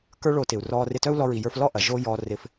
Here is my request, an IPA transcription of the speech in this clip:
k ə˞˥ ɭ o˧ t ɪ˩ u̯ r ɔː˧ r ɪ˧ t œ˥ u̯ l ɔ˧ ɹ i˩ j ə˞˧ f l ɔ˥ ʔ ɐ˩ ʒ oː˥ j ɔː˧ r ɪ˧ f

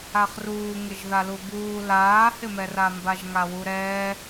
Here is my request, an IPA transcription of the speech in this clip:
a χ r uː ŋ ɪ ʒ ð a l u b uː l aː h ɪ m ɛ r a m b a ʒ ŋ a w u ɾ ɛː

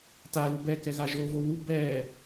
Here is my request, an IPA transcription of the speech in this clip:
t a l u b ɛ k ɛ ɣ a ʒ o v o w u b ɛ

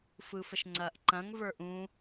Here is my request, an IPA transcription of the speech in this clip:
f ɯ f ə ʃ ŋ͡ǀ ɐː ʔ ǃ ɐ̃ ŋ v ə˞ ʔ ũ

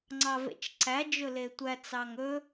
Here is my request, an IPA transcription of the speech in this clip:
ŋ͡ǀ ɑ v ḛ t͡ʃ ǀ æ d͡ʒ ɵ l e tʷ æ t͡s ɑ ŋ ɵ

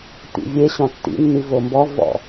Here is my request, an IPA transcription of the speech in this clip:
t̪ ḭ vʲ e ɕ ɔ̃ tː ḭ nː i v o m b ɔ v ɔ̰

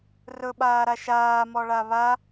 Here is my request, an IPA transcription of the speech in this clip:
r ɵ ɓ aː ɾ a ʃ aː m ɔ ɭ a β a

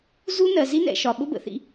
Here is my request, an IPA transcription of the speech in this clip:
z u˦ n ɜ˨ z i˦ n ɛ̰˨ ʃ ɒ˨ ɓ ʊ˦ b ə̰˨ θ ḭ˧

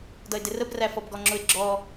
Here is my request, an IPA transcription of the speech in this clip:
d ʌ ɪ̯ d ɪ r ə b r æ f ɔ b ɡ ɔ ŋ͡ǁ ʊ ɪ̯ ɡ͡ǁ ɔ

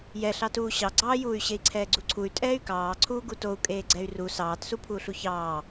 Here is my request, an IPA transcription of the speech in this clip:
j ɛ ɬ ɑ t uː ɕ ɑ ɡ͡ǀ ɑː j uː y̯ ɕ e i̯ ǀʰ ɛː ɡ͡ǀ u ǀʰ u y̯ tʼ ɛː y̯ k ɑː ǀʰ uː ɡ u t o u̯ kʼ eː ɡ͡ǀ ɛ y̯ r u s ɑː t s u pʰ uː ɬ u ç ɑː

